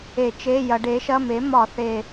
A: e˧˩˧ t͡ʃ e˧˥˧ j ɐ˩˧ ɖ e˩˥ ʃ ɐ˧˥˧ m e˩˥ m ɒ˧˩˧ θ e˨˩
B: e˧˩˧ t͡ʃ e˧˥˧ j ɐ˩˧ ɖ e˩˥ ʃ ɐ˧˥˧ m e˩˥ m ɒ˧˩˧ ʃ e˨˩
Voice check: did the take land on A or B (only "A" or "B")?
A